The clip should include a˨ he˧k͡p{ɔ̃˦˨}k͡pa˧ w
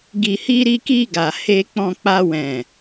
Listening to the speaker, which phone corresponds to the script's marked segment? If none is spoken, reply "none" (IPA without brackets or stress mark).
ɔ̃˧